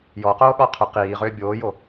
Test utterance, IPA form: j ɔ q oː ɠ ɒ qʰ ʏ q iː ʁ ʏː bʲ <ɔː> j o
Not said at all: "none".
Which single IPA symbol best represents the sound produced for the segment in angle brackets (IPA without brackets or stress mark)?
oː